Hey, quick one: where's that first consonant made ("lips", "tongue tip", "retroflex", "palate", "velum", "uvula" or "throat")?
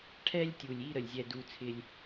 retroflex